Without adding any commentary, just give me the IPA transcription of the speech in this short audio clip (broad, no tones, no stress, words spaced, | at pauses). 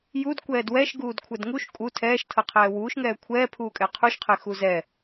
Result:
jud kʷɛːdwɛʃɡuːd kʷʰɛdŋuʃ kʼu tʰɛːʃtʰɤ qʰɛːwuːʃŋɛː kʷʰɛːpʰuːkʼɛ qʰuʃqʰe xuzɛ